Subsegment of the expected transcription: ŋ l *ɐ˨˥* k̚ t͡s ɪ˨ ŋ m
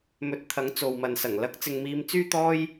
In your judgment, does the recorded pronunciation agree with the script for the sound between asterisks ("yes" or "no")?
yes